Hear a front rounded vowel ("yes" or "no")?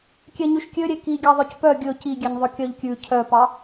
yes